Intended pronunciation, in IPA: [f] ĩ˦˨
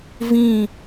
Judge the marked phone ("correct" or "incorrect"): incorrect